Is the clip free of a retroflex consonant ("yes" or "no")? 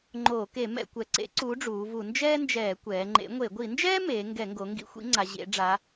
no